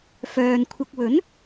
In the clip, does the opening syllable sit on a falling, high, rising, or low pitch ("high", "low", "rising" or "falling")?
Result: low